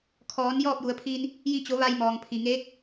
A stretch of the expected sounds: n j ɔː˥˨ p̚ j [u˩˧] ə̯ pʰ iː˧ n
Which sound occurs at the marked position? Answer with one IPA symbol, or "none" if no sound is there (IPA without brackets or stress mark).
u˩˧